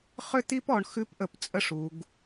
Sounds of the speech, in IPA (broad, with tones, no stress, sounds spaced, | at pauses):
χ ʏ˥ t̪ i˥ p ɔ˩˧ ɳ x ʉ˥ p ʔ ə˧˩ p t͡sʼ ə˥ ʂ u˩˧ ɡ